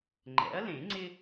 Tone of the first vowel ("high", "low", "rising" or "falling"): rising